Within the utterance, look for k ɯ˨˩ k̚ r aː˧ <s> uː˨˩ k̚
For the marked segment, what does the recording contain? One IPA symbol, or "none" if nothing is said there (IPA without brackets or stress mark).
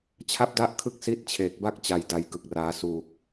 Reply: s